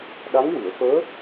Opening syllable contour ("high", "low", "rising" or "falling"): rising